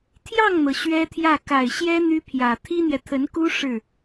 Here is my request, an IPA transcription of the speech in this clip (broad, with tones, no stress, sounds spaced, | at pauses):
t̪ʰ j ɑ˥˩ ŋ n̪ ɤ˩ ɕ ɥ ɛ˥ t̪ʰ j ä˥˩ k a˨˩ ɪ̯ ɕ j ɛ˥ n̪ y˥ pʰ j ä˨˩ t̪ʰ i˥ n̪ j ɛ˨ t̪ʰ ə˧˥ n k u˥ ʂ ɻ̩˥˩